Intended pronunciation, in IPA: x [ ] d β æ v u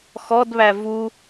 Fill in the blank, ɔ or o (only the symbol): ɔ